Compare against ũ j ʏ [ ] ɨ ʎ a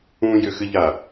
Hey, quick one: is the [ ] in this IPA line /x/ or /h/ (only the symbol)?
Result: x